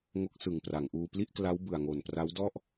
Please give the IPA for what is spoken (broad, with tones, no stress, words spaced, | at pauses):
ŋo˦˥k̚sɯ˨˩ŋpra˩˦ŋʔuː˧ pli˥˩ʔkla˦˥w bɯ˨˩a̯ŋo˨˩npra˦˥wdɔ˥˩ʔ